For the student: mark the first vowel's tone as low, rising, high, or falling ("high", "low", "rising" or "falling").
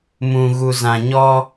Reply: low